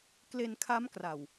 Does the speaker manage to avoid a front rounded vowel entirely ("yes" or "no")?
yes